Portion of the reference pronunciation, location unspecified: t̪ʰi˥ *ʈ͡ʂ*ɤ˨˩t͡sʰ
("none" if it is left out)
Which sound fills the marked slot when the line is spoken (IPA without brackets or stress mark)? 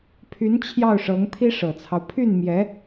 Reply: ʂ